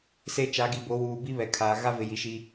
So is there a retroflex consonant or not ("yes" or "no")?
no